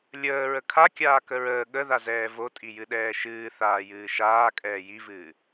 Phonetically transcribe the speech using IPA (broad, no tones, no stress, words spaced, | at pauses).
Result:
lʲəː ɹəkʰa kʲaːkəɹəː ɠəðazɛː votʼi jɨɗɛːʃɨː θaːjɨːʃaː kʼɛːjivɨː